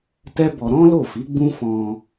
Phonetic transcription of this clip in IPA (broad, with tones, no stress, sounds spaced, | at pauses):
t ɛ˦ b ɔ˧ ɾ ɔ̃˦ l o˦˨ f i˨˦ ɡ͡b ũ˦ f ɔ̃˧